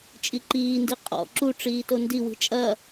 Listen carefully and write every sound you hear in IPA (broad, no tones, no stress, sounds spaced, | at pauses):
t͡ʃʼ i ǃ iː n d i qʼ ɔ̰ ǁ u ʈ͡ʂ iː t o n d i w i̤ t͡ʃʼ ɐ